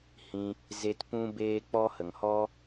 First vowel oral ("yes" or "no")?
no